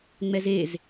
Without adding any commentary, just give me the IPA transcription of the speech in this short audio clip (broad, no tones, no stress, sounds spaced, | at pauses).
ŋ͡m ɛ z e z